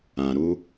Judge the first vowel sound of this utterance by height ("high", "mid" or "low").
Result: low